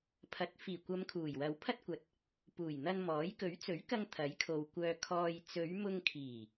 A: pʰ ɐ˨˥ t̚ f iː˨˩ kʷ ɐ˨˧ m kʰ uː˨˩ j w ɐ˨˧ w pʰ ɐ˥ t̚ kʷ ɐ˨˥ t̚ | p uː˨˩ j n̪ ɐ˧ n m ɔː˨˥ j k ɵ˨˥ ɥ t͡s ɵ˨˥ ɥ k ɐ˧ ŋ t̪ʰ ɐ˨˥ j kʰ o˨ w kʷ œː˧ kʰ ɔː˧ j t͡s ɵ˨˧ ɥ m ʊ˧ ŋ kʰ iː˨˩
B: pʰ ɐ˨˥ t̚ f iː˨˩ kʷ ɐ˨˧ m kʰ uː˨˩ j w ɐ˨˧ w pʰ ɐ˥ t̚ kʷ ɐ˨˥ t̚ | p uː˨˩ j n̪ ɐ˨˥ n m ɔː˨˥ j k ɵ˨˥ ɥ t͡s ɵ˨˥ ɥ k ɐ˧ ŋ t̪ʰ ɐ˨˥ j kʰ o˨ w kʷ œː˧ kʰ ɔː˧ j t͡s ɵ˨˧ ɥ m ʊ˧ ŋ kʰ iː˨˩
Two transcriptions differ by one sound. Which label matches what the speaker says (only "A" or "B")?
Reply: A